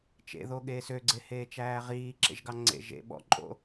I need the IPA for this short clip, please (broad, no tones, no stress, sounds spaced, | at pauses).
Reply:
t͡ʃ ḛ ð o ɠ eː s ø ɡ͡ǀ e h eː t͡ʃ æː ʁ iː ǁ ḛ ʒ ɡ ɑ ŋ͡ǀ ḛ ʒ ḛ ɓ ɔ̰ ǃʼ o̰